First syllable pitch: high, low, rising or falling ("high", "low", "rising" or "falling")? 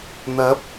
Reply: rising